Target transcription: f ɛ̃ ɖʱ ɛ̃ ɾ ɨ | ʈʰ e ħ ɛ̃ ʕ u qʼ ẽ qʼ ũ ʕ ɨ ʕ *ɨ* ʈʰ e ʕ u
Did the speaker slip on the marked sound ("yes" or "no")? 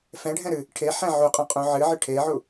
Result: no